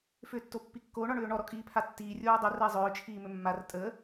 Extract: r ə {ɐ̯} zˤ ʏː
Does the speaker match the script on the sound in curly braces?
no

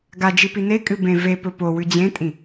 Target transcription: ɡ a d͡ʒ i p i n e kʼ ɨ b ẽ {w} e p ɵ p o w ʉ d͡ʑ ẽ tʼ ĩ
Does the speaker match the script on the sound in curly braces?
no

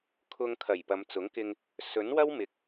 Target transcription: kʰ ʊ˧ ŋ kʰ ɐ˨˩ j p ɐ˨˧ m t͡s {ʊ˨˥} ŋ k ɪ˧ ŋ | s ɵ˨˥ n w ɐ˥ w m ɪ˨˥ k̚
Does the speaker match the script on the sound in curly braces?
yes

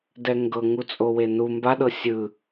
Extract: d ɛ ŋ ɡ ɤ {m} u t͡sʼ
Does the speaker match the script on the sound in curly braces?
no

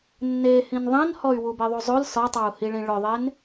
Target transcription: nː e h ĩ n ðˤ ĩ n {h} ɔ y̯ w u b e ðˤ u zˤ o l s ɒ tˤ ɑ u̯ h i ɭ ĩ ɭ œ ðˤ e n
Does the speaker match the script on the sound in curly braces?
yes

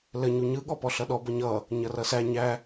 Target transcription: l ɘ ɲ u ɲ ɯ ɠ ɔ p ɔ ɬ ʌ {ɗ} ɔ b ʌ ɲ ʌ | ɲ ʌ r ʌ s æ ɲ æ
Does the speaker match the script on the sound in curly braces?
yes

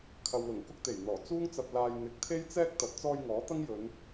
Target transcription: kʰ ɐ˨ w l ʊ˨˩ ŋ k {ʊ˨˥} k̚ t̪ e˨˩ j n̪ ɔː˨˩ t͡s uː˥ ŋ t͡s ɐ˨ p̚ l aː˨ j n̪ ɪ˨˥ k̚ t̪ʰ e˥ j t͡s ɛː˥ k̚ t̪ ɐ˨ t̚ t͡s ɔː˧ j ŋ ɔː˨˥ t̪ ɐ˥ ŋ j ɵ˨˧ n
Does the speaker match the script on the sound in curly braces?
no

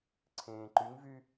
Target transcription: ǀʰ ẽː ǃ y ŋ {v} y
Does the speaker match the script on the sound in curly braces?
yes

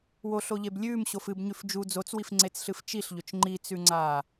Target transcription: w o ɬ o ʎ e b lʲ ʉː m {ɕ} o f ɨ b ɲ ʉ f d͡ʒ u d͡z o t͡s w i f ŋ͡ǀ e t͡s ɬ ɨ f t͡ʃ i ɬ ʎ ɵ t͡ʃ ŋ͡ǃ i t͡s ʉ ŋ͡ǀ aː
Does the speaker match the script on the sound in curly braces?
yes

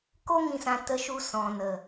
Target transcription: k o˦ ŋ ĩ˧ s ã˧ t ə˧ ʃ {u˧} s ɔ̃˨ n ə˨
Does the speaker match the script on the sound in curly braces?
yes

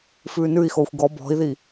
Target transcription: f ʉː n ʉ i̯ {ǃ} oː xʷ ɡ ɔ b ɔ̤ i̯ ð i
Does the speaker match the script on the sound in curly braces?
no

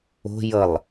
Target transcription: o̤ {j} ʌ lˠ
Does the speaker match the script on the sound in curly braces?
yes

